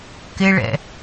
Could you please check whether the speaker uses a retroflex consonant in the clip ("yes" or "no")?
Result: yes